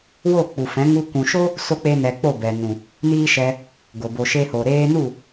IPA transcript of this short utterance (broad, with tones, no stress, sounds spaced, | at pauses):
w o˦˨ k͡p u˨ f ɛ̃˨˦ ŋ u˧ kʷ ũ˨ ʃ o˦ | s o˦ k͡p e˦ n ɛ˧ k͡p o˦˨ b ɛ˨ n ũ˨ | n iː˦ ʃ ɛ˧ | ɡ o˨ b o˨ ʃ e˧ h o˨ ɾ eː˧ n u˦˨